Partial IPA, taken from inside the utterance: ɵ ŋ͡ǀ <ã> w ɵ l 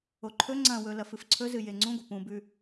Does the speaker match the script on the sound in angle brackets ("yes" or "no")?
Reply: no